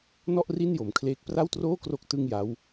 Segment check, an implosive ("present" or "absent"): absent